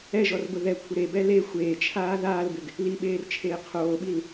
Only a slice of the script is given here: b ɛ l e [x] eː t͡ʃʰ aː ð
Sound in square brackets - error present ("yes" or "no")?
yes